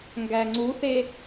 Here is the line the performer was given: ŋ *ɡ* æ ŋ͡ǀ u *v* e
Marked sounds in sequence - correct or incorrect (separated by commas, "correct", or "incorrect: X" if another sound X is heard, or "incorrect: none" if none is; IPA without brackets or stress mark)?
correct, incorrect: θ